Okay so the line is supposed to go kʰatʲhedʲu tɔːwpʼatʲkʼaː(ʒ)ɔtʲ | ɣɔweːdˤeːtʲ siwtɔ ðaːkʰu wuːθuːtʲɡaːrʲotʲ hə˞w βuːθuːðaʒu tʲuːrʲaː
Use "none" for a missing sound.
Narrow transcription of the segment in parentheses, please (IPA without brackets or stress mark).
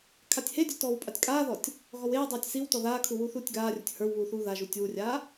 ð